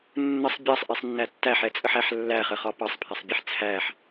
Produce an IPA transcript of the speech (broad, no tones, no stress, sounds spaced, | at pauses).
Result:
nː ə sˤ bʲ ɑ sˤ ʔ i sˤ nː æ tː æ ħ ɛ t͡sʼ ə ħ æ ħ lː æ χ ə χ ɒ p ɑ sˤ pʰ æ sˤ bʲ ɛ ħ t͡sʰ æ ħ